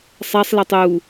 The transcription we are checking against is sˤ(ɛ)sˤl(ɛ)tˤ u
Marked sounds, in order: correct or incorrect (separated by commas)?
correct, correct